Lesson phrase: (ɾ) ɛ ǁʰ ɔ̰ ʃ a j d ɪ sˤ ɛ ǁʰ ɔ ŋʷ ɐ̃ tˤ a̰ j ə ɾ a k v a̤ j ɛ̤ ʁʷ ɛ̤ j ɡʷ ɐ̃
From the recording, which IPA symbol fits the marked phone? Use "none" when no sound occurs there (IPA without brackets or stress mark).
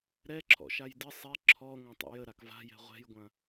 ɾ